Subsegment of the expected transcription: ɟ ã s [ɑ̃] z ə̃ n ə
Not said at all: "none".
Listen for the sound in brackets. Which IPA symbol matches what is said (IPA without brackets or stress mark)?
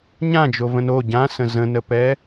ə̃